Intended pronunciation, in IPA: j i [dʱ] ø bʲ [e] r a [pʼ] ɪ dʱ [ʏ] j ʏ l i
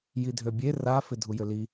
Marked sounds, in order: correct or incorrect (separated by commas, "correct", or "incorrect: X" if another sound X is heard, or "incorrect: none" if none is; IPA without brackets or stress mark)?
correct, correct, incorrect: f, incorrect: u